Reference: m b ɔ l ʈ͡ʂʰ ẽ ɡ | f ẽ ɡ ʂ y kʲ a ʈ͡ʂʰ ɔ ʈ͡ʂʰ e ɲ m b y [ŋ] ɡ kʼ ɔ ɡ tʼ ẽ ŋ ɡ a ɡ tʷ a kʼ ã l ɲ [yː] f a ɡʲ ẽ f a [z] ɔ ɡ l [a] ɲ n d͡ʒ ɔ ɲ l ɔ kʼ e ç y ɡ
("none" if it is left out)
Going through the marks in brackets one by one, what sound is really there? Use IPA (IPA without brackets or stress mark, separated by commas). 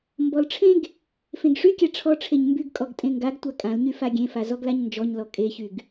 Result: none, y, z, a